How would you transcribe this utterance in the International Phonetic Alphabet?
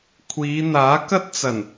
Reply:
kʷʰ iː˨˧ n̪ aː˨˥ k ɐ˥ t̚ t͡s ɐ˨˩ n

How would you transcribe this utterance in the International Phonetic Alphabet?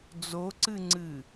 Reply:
d͡z o ǀ ɨ ŋ͡ǀ ɨ

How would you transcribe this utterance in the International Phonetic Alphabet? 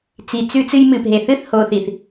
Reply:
t͡s i˨ t͡s ʉ˦ t͡s ɨ˦ j m ɨ˨ p ɦ e˨ θ ɨ˦ θ h o˨ θ i˨ θ

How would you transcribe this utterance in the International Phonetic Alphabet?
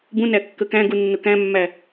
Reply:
b ũ n æ kː ə k æ̃ ɡ u nː ʊ k æ̃ mː æ

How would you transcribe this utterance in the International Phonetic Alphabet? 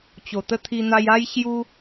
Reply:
t͡ɕ o˨˩ t̪ ə˦ t̪ʰ i˧ n̪ a˧ j a˦ j ɕ j u˦

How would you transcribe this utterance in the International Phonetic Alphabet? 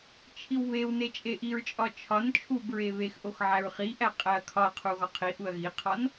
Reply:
t͡ʃʰ i w β e w n e t͡ʃʼ e ʔ i ɹ t͡ʃʼ ɒ t͡ʃʰ ɒ n t͡ʃʰ u b ɹ e β e x ʔ o x ʕ æ ɹ χ i ʔ æ qʼ æ ɐ̯ kʰ ɒ ɐ̯ qʰ u ɣ ɒ qʰ i ʔ u ɐ̯ ɣ i qʰ ɒ n

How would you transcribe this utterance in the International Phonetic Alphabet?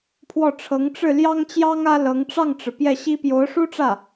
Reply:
pʰ w ɔ˥˩ ʈ͡ʂʰ ɤ˧˥ ŋ ʈ͡ʂ ɻ̩˥˩ l j ɑ˥ ŋ t͡ɕ j ɑ˥ ŋ ä˥ l ɤ˧˥ ŋ ʈ͡ʂ ɑ˥˩ ŋ ʈ͡ʂ ɻ̩˩ p j ɛ˥˩ ɕ i˥ p j o˧˥ ʊ̯ ʂ u˥ ʈ͡ʂ ä˥˩

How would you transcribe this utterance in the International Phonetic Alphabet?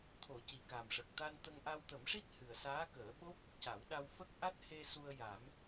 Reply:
t̪ʰ o˨˩˦ c i˨˩ k a˨˩ m ʂ ə˨˩ k̚ t̪ a˧ n t̪ ə˧ ŋ ʔ a˧ w t̪ ə˨˩˦ m ʂ i˦˥ t̚ h ɨ˨˩ ə̯ s aː˧˥ k əː˨˩˦ ɓ o˦˥ p̚ | c a˨˩˦ w ɗ a˧ w f ə˦˥ k̚ ʔ a˦˥ t̚ h e˧ s u˧ ə̯ j a˨˩˦ m

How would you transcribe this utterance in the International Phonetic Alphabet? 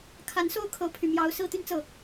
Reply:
kʰ a˧˥ n s o˥ ʊ̯ kʰ ɤ˧˥ pʰ y˨˩ m j ɑ˧˥ ʊ̯ s ɹ̩˥˧ t̪ y˥˧ n t͡s ɤ˥˩

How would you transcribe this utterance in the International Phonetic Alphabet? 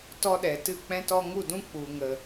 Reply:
t ɔ˦ ɗ ɛ˨ t ɨ˦˨ k͡p ɛ̃˦ t ɔ˦ ŋ u˦˨ d ũ˦ k͡p u˨ ŋ ə˨

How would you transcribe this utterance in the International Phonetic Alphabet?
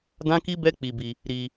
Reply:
d ã˦ k i˦ b ɛ˦ k͡p i˧ b i˧ | ɾ i˧

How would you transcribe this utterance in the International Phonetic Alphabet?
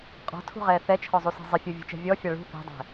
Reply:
qʼ ɔ̤ tʰ ṳ ʁ ɛː θ ɛ t͡ʃʰ ɔ zˤ u s e̤ zˤ ɪ fʲ u vʲ ṳ t͡ʃ ɛ̤ vʲ ɔ fʲ a ɭ ṳ θ e̤ dˤ ɛ̤

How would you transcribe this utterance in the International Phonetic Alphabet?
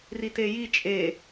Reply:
r i t e j i t͡ʃʼ e

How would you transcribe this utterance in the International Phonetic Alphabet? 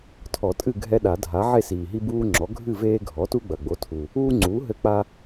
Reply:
tʰ ɔ˨˩˦ tʼ ɨ˥˨ ɡʱ ɛ˦ ɗ a˨˩˦ dʱ a˩˥ ʕ e˥˨ s iː˨˩ ɦ i˦ b uː˦ ŋ͡ǁ ɔ˩˥ ɡʱ ɨ˥˨ v eː˦ ɡʱ ɔ˩˥ t u˦ ɡ͡b ɐ˨˩ ɡ͡b o˩˥ tʰ u˨˩ | uː˦ ŋ͡ǀ uː˩˥ ɦ ɘ˦ k͡p a˦

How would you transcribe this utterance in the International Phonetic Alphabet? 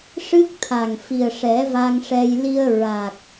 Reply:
ʂ ɨ˦˥ k̚ t̪ʰ a˨˩ ŋ f i˨˩ ə̯ ʂ ɛ˨˩˦ v a˧ ŋ ʂ ɛ˧ j l i˧ ə̯ ɹ a˨˩ k̚

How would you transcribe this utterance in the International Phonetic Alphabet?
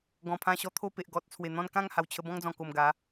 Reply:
ɡ ɔ̃˨˩ pʰ ã˧ ɕ ɔ˧ t̪ʰ o˥˧ p e˨ ʔ ɡ ɔ˨ t̚ t͡sʰ w e˨˩ n̪ ɔ̃˥˧ n k ã˥˧ ŋ h a˨˩ w t͡ɕʰ ə˧ b ɔ̃˦ ŋ d͡z ɔ̃˨˩ k o˨˩ m ɡ a˨˦

